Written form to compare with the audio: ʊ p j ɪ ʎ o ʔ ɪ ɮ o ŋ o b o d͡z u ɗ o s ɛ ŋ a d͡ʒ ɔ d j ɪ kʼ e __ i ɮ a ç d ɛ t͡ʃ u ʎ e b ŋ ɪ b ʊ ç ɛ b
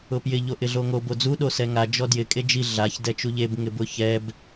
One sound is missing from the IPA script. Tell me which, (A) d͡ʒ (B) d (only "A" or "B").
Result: A